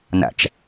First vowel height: low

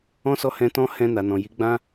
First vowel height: mid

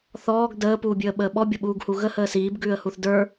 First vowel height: mid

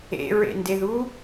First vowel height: mid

